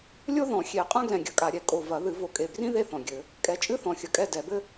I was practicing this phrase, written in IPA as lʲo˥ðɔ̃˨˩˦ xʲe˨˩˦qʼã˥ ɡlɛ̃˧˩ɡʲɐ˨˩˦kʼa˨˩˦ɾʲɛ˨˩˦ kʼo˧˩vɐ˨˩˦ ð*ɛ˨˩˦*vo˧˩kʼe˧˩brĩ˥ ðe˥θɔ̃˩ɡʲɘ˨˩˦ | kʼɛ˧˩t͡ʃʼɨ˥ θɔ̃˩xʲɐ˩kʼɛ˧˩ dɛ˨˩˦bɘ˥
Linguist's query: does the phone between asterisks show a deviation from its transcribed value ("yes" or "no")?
yes